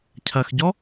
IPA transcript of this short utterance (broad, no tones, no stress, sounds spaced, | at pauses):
cʰ ɐ x ɟ ɔ